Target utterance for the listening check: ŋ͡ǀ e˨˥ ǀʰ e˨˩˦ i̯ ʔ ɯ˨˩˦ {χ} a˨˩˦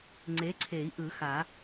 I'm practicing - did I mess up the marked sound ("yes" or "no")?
yes